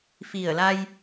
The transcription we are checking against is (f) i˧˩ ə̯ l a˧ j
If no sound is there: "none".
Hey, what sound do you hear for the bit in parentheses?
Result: f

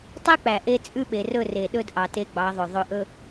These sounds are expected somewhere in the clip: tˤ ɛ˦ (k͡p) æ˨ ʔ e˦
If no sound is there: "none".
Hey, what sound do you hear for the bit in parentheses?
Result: k͡p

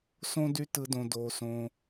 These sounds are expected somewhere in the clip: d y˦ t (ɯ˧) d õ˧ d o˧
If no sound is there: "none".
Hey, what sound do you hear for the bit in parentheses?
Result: ɯ˧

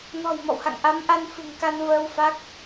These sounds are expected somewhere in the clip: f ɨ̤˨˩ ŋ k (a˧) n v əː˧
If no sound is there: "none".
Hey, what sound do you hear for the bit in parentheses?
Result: a˧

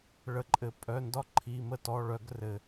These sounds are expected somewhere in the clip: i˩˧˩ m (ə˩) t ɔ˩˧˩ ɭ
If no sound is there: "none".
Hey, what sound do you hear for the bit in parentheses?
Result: ə˦˨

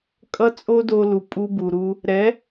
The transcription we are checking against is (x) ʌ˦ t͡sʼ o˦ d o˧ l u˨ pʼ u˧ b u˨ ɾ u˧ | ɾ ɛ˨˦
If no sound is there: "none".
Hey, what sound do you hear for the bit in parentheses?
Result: kʼ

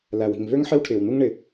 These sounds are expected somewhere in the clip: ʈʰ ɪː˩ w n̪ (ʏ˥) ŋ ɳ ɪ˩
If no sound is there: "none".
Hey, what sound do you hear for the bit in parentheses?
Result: u˥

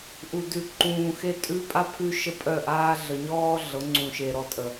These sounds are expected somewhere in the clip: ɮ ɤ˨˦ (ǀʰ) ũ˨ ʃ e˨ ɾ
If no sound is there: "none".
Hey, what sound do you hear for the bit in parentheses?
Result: ŋ͡ǀ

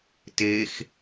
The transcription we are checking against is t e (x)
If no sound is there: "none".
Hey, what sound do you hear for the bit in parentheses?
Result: x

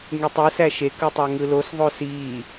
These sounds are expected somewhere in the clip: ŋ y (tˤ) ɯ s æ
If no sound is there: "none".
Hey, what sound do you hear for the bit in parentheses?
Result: tˤ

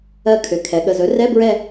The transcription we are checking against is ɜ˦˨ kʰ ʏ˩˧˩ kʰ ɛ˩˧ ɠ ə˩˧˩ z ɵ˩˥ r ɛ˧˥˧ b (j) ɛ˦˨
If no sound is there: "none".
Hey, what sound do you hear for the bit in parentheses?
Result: ɹ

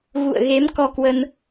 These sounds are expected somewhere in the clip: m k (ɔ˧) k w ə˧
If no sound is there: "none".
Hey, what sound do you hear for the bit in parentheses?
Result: ɔ˧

